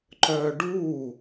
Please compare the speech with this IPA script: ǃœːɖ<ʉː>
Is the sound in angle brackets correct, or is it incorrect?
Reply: incorrect